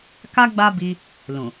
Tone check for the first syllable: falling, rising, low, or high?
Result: high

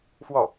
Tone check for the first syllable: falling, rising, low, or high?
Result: falling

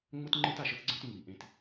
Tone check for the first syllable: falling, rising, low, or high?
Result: high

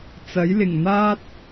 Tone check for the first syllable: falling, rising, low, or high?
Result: rising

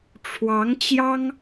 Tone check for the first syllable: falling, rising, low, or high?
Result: rising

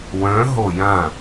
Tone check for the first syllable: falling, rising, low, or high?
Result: rising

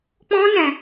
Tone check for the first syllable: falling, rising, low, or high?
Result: high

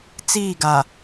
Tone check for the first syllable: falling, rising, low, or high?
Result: falling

